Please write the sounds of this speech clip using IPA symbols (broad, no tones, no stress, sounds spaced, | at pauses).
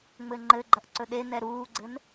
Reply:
ŋ͡m ɘ ŋ͡ǃ ɘ ɡ͡ǃ ɐ ʔ ǀ ɵ ɗ e n ɛ ɾ uː ɡ͡ǀ ɘ n